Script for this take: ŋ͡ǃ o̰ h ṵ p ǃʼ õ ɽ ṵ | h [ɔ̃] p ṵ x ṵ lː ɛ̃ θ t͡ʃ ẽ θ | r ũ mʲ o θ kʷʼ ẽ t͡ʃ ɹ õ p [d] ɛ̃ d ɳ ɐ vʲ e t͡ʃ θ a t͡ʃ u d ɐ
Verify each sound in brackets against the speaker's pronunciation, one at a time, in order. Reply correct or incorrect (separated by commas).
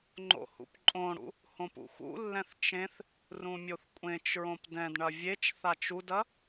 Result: incorrect, correct